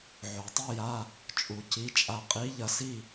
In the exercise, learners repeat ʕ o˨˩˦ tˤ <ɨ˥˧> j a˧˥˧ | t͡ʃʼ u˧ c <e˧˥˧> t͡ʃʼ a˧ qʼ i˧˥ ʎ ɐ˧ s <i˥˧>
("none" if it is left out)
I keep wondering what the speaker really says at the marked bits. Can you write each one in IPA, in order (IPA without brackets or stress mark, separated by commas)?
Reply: ɨ˥˧, i˧˥˧, i˥˧